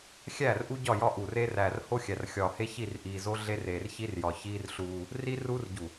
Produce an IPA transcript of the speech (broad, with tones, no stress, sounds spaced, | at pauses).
xʲ æː˦˨ r ʔ u˦ ɟ ɒ˦˨ j ɒ˦ ʔ uː˨ r eː˦ r æː˨ r h o˦ xʲ æ˨ r xʲ ɒː˨ h e˦ ç i˦˨ r ʔ iː˨ z o˦ ɮ e˦ r eː˨ r ç i˦ r j ɒ˨ ç iː˦ r ɬ uː˦ | r i˦ r uː˦ r ɟ u˨